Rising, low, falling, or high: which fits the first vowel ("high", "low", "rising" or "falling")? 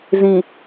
low